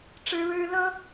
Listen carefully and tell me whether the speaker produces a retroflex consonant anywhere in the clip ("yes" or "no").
yes